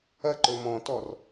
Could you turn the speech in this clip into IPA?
ɐǃɵ mɔ̃tɔr

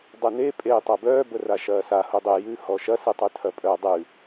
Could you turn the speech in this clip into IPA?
dˤɨne pʼeːtˤabœː bəraʃɐːsa hudˤe jʉ hɔʃɐ sɨtˤʉtʰɐpʼœ dˤʉ

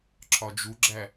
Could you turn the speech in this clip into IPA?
ǁʰɒd͡ʒuɡ͡ǁæ

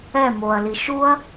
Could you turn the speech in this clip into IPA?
ɛ moɐ̯li ʃuɐ̯

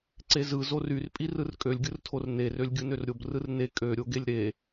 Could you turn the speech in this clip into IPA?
ǀezɯ zoryrpʼi rɯrkʼølʲɡʲɯrtʰor nerølʲ ɡʲɯnørɾʲob rɯrne kʼø ɾʲoɡelʲɾe

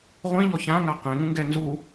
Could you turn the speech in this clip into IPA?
ʁʷĩʎɔ çãŋa qẽŋũŋɡɛ nzu

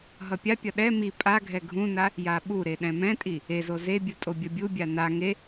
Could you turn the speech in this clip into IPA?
ɦʌpʲapʲʌ ɗɛ mi pʼaɡʱɛ ɡʱũna | jaɓuɾe ɗɛ̃mɛ̃tʼi | ezo zebʲɯ tʼobʲʌbʲubʲa na ŋe

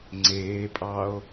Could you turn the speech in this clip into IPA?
ŋ͡ǀeːpʼɑo̯

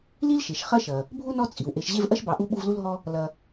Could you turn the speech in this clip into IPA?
li˥lʃe˩ʃ χɐ˦ʃɐ˩ | bʱu˥nɔ˦ t͡sʼi˩wʔe˨ʃ ʑe˦vʔɐ˥ʃbɑ˨ʔu˦ ɓu˦vlu˥lɦɔ˥ | lɐ˨

